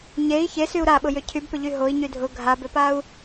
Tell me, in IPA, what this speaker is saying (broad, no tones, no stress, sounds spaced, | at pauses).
ɲ e i̯ ç e s y u̯ ɾ a ɓ ʊ j ʏ cʰ y b p ʏ ʎ y ɦ o i̯ ɲ y dʱ ʊ ɡʱ a b ʏ p a u̯